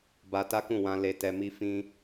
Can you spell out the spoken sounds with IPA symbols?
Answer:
b a˧ t a˦ k ũ˦˨ w ã˧ l e˧ t ɛ˧ m i˦ f ĩ˦

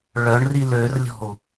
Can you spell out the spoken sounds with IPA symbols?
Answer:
ɭ œ ɳ r i l ø r lʲ ɔ̤ u̯

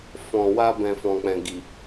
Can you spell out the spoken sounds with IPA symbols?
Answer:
f ɔ̃˨ w a˧ b ɛ̃˨ f ɔ̃˨ k͡p ɛ̃˨ ɡ i˨

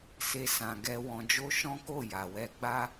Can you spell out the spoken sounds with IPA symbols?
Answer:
s e˦ s ã˧ ɡ ɛ˦ w ɔ̃˧ d͡ʒ o˦ ʃ ɔ̃˦ k o˦˨ j a˨ w ɛ˧ ɡ͡b a˦

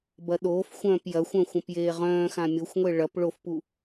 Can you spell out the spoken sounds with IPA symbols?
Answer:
b ɐ ɗ oː f xʷ œ̃ː p j ɐ xʷ œ̃ xʷ ɐ̃ p j eː ʁ œ̃ː x ã mʲ o xʷ ŋʷ e ɭ ɐ p ɭ o f p u

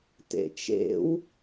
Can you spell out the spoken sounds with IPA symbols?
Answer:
t ḛ t͡ʃ ḛ w

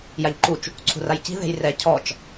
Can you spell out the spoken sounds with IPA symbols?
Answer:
j a ʎ ǃ u t͡ʃ | ǀʰ ṳ r a j c i̤ ð e̤ j r ɛ cʰ ɔ t͡ʃ

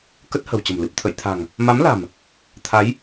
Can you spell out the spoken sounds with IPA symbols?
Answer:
k ə˦˥ t̚ h ə̤˨˩ w t͡ɕ ə̤˨˩ m l ɨ˨˩ p̚ t̪ʰ ə̰˧˨ j t̪ʰ a̤˨˩ ŋ | m a˨˦ m l a̤˨˩ m | t̪ʰ a˨˦ j

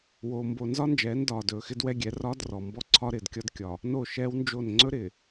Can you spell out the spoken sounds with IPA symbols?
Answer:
w oː˨ m b o˨ n z ɒ˦ n d͡ʒ ɛː˨˦ n d ɒː˨ d ɵː˨ x ɪ˦ d w ɛ˦ ɡʲ ɛ˨˦ r ɒː˦ d r ɔ˨ m b ɔ˦ ǀʰ ɒ˦ ɾ ɪː˨ d kʲ ɒ˦ d kʲ ɒ˨ | n o˦˨ ʃ ɛː˦ w n d͡ʒ o˦˨ n ŋ͡ǀ ɵ˦ ɾ ɪː˨

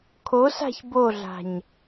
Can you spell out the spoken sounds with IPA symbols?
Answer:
kʰ o s a̤ ç b o ɮ a̤ ɲ

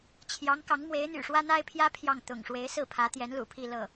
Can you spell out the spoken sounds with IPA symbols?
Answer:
t͡ɕʰ j ɑ˧˥ ŋ k ɑ˧˥ ŋ m w e˧˥ ɪ̯ n̪ y̰˨˩ ʂ w ä˥ n̪ a˥ ɪ̯ pʰ j ä˥ pʰ j ɑ˥˩ ŋ t̪ ʊ̰˨˩ ŋ ʂ w e˧˥ ɪ̯ s ɹ̩˥˩ pʰ ä˧˥ t̪ j ɛ˧˥ n l ṵ˨˩ pʰ i˥˧ l ɤ˥˩

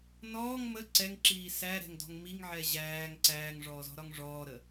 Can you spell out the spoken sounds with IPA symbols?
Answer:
n ɔː ŋ m ə ǀ ɛ ŋ ǁ iː s æ ɾ ɛ̤ ŋ d ɔ̤ ŋ m i ŋ ʕ ɛ ʑ æː ŋ ǀ æː ŋ ʐ ɔː z ɔ̤ ɾ ɒ ŋ ʐ ɔː ɾ ə

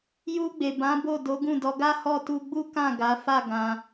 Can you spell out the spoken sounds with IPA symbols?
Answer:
j u˧ ɡ͡b e˨ b ã˨˦ b o˦˨ d o˨˦ ɡ ũ˦˨ d ɔ˧ ɡ a˦ h ɔ˦˨ t u˧ ɡ͡b u˦ k ã˦˨ ɡ a˨˦ f a˦˨ ɡ ã˧

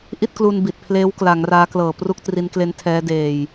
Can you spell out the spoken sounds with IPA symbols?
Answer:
ʔ i˥˩ t̚ k l u˧ n b i˨˩ t̚ pʰ l eː˦˥ w k l a˩˦ ŋ r aː˦˥ k l ɤː˨˩ p r u˥˩ k̚ t r i˦˥ n k l e˦˥ n tʰ ɛː˦˥ d eː˧ j

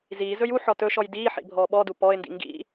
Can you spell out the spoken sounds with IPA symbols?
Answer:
z iː z ɵ j u ħ ɔ t ɵ ʃ ɔ j d iː ħ ḭ bʱ ɔː ɓ ɔ d u p ɔ ɪ̯ n d ḭ ŋ ɡ ḭ

